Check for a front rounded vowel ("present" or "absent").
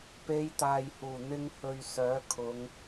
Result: present